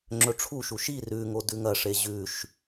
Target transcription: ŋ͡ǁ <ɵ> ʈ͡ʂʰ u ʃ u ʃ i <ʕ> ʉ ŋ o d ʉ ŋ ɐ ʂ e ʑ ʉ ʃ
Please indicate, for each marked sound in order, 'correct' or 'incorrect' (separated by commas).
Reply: correct, incorrect